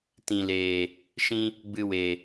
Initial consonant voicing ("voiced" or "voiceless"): voiceless